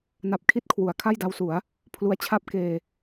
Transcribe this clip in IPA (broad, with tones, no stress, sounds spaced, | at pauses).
n a˦˥ p̚ kʰ i˥˩ t̚ kʰ w u˩˦ a̯ kʰ a˥˩ j d a˧ w s u˩˦ a̯ | pʰ l u˦˥ a̯ t͡ɕʰ a˥˩ p̚ k eː˧